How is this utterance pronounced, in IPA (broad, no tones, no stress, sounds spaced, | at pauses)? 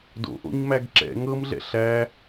d o̰ ʔ o̰ ɲ m æ ɡ ǁ ɛ̰ ŋ ɤ m ɮ ɛ̰ ɬ æ